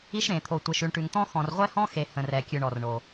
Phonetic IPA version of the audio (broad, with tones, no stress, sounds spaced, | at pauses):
i˧ ʃ ɾ ẽ˩ t̪ʰ o˩ tʷ e˩ ʃ ʉ˩ ɳ ʈ ʉ˩ ŋ t̪ ɔ̃˧ x ɔ̃˩ r ʁʷ ɛ˧ h ɔ̃˧ x e˩ h ə̃˩ r ɛ˩ kʲ ʉ˩ ɳ ɔ˩ r ɳ o˩